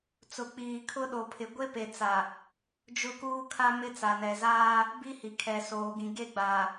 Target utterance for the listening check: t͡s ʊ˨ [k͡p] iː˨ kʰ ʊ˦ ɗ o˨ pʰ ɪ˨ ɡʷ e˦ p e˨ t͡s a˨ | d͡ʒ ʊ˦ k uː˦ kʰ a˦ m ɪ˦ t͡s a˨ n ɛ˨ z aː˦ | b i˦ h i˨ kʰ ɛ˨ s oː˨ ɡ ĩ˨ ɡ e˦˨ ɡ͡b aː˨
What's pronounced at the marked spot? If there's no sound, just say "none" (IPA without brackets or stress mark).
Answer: k͡p